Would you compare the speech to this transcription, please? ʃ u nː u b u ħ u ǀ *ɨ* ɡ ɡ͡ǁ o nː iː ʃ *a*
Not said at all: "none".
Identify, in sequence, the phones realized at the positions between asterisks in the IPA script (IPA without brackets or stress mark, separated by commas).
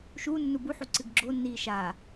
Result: ɨ, a